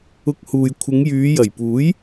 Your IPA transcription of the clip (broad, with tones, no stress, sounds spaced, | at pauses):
ʊ˧ k̚ h uː˨ j kʷʰ ɪ˨˧ ŋ j yː˨˧ j ɐ˨˩ j p uː˨˥ j